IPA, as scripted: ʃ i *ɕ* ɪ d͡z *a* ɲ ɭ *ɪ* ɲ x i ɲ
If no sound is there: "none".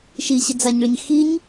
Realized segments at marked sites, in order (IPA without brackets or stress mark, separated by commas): ɕ, a, ɪ